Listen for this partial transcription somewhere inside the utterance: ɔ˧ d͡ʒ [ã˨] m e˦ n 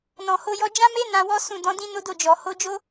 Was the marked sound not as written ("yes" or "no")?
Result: yes